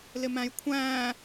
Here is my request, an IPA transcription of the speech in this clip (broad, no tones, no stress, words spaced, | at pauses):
lɪmæ̃jkʷʰæ̃ː